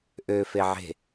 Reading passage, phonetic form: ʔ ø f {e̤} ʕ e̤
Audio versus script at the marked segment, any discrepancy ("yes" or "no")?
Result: yes